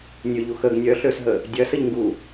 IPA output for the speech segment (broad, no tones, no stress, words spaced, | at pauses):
nʲøʎu xəɡ nʲœɬøsɦə | dʲɐsəʎŋɡu